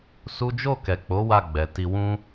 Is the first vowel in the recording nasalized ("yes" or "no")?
no